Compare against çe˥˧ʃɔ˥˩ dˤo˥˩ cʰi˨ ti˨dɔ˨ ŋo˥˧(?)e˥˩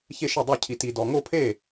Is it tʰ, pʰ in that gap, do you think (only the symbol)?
pʰ